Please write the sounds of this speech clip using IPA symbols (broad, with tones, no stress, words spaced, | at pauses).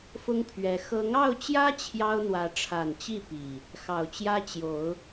fʊ˦ŋpʰɥɛ˨˦ xɤ˨˦ŋɑ˥˨ʊ̯t͡ɕjä˦ t͡ɕʰjɑ˦ʊ̯n̪wä˨˦ʈ͡ʂʰa˨˩nt͡ɕi˥˨ pi˨˩ | xɑ˨˩ʊ̯t͡ɕjä˦ t͡ɕjo˨˦ʊ̯